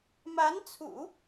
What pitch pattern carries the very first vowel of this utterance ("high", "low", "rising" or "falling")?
rising